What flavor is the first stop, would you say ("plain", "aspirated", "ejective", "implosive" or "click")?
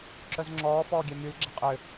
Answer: click